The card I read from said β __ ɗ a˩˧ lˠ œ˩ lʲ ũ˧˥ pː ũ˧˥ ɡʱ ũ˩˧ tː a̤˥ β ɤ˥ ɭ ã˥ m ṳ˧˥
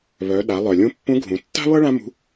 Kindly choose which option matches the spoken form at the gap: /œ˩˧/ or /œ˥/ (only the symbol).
œ˩˧